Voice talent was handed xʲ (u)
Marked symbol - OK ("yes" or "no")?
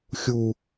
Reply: yes